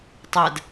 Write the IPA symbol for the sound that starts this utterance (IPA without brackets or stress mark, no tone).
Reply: tˤ